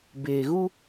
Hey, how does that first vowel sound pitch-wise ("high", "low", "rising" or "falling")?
low